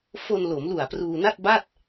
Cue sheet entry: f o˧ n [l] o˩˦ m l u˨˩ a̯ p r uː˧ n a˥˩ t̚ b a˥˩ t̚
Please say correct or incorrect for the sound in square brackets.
correct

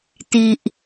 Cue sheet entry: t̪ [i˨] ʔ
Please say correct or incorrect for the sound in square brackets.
correct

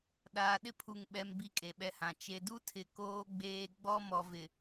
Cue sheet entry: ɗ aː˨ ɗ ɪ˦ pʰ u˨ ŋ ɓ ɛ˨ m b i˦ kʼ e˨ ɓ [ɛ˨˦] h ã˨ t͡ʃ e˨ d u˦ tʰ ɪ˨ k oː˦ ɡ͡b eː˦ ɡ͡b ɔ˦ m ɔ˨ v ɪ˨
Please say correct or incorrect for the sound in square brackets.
incorrect: ɛ˦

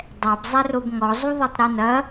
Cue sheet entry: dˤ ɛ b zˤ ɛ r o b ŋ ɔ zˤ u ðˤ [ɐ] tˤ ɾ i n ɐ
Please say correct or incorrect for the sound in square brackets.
correct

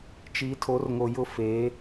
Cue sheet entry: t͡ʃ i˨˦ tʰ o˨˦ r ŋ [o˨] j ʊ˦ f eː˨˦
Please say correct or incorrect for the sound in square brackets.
correct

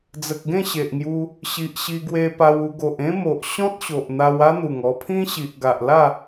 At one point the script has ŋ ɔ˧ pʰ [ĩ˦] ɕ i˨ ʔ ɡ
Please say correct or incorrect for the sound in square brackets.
correct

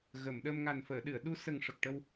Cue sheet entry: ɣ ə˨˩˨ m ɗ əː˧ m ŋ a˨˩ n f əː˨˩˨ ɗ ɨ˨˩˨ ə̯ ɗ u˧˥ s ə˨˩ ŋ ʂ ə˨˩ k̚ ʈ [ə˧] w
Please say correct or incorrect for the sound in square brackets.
correct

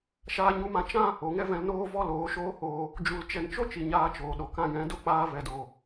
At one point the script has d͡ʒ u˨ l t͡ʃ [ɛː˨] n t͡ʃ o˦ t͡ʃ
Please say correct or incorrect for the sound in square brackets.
incorrect: ɛ˨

